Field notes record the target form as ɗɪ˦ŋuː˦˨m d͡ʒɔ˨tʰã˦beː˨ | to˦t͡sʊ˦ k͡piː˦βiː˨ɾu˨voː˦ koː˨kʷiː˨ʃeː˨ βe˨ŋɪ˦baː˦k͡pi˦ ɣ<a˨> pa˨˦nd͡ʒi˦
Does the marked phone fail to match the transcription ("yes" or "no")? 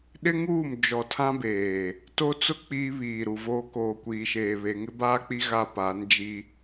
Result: yes